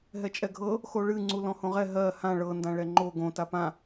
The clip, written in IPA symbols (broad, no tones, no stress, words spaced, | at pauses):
ɦɛt͡ʃʼɛɡʱɤ | xoɭɨ ŋ͡ǀulɔ̃hõʁɛ ɦɜ hã ɭɤ ndãɭɛŋ͡ǃo ɡõ tapã